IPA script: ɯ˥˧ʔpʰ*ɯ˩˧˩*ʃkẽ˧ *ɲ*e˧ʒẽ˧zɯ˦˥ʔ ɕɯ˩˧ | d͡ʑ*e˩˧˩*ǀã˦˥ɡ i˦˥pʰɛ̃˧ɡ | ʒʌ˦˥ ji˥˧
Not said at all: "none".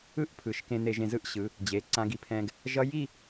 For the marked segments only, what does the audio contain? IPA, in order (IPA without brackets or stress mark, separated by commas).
ɯ˩˧˩, n̪, e˩˧˩